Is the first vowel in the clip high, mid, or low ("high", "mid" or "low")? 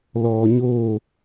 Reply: mid